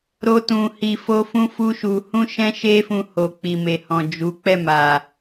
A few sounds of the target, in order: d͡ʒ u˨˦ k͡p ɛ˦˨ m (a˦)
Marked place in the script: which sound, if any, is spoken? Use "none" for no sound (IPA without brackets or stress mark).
a˨